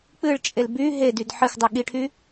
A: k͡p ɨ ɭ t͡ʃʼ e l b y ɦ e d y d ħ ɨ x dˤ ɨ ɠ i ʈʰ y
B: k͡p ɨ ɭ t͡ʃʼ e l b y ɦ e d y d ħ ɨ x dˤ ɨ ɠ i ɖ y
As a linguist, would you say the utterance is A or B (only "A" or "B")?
A